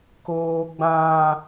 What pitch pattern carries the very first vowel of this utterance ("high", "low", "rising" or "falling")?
high